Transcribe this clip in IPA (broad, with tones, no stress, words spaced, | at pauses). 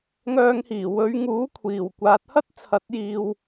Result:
ŋœː˧ŋhiː˨˩ wɵ˨˧ɥŋuː˨˥kʷʰiː˨˩w kʷaː˨˥t̚hɐ˥t̚t͡sʰɐ˨˥t̚jiː˨w